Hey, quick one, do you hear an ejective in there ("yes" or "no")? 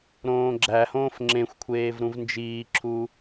no